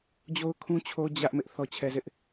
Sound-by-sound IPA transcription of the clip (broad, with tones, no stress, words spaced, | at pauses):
d͡ʑo˦ʊ̯kʰũ˦t͡ɕʰo˦ d͡ʑä˦ʔmɪ˦ʔ θɔ˦t͡ɕʰɛ˦zɪ˦ʔ